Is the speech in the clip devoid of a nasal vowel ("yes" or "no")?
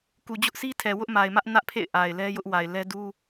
yes